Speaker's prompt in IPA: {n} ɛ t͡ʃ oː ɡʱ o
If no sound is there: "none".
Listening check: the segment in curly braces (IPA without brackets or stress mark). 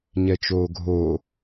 ɲ